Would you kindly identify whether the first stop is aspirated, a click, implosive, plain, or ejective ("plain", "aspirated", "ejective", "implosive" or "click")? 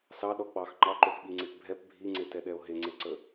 implosive